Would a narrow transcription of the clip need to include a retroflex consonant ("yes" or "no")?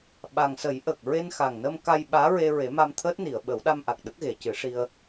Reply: yes